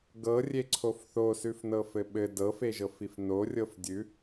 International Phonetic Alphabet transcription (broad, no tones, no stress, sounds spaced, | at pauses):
ɡ ɤ rʲ e ǀʰ o f θ o s ʉ f n ɤ f ɘ ɓ ɘ d ɤ f e ʒ ɤ f i f n o rʲ ɤ f dʲ ʉ